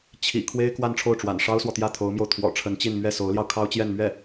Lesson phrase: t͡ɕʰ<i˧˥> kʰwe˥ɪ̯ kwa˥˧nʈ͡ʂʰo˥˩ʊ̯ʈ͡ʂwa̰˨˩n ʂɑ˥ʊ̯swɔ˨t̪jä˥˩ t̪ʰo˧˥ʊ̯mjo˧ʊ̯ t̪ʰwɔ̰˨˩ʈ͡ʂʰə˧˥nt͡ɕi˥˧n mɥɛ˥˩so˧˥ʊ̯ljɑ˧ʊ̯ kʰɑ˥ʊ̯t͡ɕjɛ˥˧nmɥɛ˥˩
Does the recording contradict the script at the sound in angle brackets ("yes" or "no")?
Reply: yes